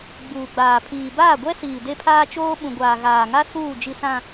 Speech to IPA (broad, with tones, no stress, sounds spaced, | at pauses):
ɡ͡b uː˨ ɡ͡b aː˨ pʰ iː˨ b aː˦˨ ɡʷ ɛ˦ s iː˨ d e˦ pʰ aː˦ t͡ʃ oː˦ ɓ ũ˨ ɡʷ aː˨ ɣ aː˨ ŋ a˦ s uː˦˨ d͡ʒ i˨ s ã˨